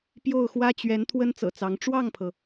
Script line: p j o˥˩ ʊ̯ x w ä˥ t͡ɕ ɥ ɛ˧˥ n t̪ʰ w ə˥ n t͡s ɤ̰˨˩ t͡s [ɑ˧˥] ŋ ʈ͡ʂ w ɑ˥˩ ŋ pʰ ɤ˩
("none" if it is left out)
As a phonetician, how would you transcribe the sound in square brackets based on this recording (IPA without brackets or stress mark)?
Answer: ɑ˧˥